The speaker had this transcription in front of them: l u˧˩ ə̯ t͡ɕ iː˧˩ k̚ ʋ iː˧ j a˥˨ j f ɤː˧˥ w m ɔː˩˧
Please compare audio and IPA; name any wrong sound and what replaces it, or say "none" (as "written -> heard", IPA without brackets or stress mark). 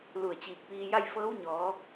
m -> ɲ